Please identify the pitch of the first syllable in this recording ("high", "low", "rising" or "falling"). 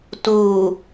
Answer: low